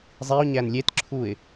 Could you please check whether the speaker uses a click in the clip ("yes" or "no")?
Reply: yes